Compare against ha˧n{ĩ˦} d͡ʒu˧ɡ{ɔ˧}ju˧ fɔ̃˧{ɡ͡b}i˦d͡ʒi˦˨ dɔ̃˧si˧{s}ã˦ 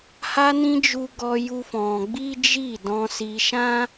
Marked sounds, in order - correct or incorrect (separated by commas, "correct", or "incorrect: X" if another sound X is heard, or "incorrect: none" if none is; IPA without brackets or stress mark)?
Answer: incorrect: ĩ˧, correct, correct, incorrect: ʃ